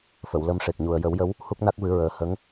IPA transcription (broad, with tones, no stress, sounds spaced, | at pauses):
f ə˨˩˨ w l ə˧ m ʂ e˨˩ k̚ ɲ u˨˩ ə̯ j ə˨˩˦ w j ə˧˥ w | h u˦˥ k̚ n a˦˥ k̚ v ɨ˨˩˦ ɹ əː˨˩ h ə˧˥ ŋ